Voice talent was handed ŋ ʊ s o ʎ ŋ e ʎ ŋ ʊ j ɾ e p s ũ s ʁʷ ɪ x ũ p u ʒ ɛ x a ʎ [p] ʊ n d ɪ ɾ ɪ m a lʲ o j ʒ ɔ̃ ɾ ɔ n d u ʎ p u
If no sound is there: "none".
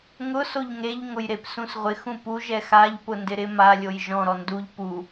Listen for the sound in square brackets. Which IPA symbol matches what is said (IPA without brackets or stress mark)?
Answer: p